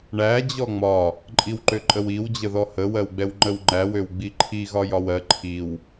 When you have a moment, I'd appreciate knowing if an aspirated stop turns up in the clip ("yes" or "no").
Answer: yes